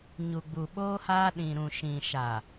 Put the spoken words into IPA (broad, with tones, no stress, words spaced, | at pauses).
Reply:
ɲu˨ɡ͡bu˨ɓoː˦haː˦ ɗĩ˨ɾũ˨ ʃĩ˨ʃa˨